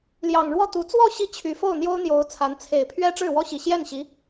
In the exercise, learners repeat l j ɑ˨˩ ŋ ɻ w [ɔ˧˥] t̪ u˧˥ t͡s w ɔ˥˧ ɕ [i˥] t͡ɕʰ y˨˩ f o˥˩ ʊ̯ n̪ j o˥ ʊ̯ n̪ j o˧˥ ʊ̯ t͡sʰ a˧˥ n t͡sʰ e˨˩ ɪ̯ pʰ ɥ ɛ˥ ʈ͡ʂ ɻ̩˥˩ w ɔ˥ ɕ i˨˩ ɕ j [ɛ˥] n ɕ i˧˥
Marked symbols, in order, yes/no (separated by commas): no, no, no